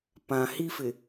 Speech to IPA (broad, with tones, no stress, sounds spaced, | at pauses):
p ã˨ h i˦ f ɪ˨